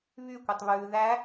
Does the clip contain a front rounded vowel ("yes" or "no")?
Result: yes